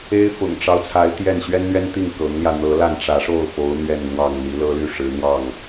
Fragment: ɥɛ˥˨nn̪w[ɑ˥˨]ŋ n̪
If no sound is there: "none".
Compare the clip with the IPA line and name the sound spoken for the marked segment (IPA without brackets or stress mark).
ɑ˥˨